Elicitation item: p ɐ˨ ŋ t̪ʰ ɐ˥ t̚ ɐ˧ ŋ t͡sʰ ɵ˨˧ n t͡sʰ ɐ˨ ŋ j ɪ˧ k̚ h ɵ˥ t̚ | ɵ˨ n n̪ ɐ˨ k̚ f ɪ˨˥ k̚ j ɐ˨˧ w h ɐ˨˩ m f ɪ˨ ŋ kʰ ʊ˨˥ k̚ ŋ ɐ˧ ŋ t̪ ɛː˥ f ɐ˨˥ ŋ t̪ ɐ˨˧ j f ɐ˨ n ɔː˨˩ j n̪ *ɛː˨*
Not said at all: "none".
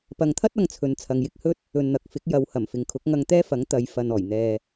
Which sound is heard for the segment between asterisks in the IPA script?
ɛː˨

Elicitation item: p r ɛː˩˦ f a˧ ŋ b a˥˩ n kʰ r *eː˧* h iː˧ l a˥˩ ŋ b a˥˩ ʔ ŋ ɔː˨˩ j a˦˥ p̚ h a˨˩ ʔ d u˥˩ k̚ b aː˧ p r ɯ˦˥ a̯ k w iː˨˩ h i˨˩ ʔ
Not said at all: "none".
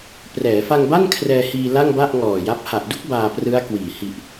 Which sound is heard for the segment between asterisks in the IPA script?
ɛː˧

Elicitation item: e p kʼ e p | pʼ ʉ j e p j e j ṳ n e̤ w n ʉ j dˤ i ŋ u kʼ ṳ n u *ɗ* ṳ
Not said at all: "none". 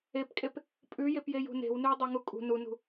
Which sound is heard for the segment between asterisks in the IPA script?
n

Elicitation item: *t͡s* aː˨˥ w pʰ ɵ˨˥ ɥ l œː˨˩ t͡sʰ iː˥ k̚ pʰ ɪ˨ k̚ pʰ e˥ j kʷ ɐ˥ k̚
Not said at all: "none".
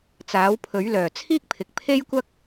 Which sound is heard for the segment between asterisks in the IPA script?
t͡s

